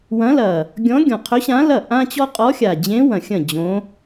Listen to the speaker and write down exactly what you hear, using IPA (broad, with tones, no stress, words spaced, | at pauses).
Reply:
wɐ̃˧˥lɐ˨˩ | ɡʲɔ̃˧˥ɡʲɔ̃˨˩qʰɵ˧˥ɕã˧˥ lɐ˥˩ ʔã˥t͡ɕɔ˥ qʼɔ˧˥xʲa˨˩d͡ʑẽ˧˥ wɐ̃˨˩xʲɐ̃˥˩ d͡ʑõ˧˥